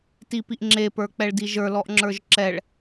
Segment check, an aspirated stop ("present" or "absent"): absent